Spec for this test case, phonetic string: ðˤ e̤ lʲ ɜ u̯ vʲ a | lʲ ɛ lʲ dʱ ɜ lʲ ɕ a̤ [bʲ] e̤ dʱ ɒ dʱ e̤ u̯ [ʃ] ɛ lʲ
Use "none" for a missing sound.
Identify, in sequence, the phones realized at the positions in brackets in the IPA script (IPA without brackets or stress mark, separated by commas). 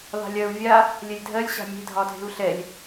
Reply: mʲ, ɬ